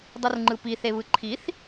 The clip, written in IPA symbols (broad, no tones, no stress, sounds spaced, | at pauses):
dˤ ɯ r ŋ͡ǃ ɯ p i θ e β ɯ ǃʰ i θ